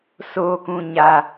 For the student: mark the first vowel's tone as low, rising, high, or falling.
low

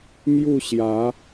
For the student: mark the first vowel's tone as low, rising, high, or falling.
falling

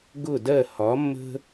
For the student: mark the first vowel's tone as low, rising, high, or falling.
falling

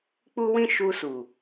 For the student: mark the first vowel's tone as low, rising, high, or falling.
high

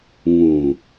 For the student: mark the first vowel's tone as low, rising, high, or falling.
low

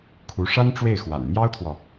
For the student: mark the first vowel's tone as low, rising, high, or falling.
rising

